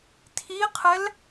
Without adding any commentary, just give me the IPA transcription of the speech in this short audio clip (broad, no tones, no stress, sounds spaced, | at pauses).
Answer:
tʰ i qʰ ɛ l